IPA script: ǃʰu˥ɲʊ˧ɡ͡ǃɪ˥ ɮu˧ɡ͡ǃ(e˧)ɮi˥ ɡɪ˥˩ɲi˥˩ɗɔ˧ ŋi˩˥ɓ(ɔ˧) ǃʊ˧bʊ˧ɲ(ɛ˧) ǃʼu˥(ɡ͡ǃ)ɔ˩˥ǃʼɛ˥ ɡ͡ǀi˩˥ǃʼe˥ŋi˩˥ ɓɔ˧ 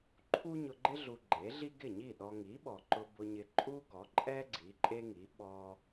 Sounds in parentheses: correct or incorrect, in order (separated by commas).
incorrect, incorrect, incorrect, incorrect